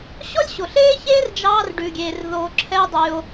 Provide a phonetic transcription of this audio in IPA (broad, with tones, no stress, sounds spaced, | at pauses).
ɕ ɔ˦ lʲ ɕ o˨ ɬ eː˦ ç eː˦ r d͡ʒ ɑː˦ r ɖ ʉ˧ ɡʲ eː˧ r ð o˧ ǁʰ ɛ˦ e̯ dˤ y˧ o̯